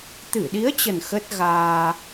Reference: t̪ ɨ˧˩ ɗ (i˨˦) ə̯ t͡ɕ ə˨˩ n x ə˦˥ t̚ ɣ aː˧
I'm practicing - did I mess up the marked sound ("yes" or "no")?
no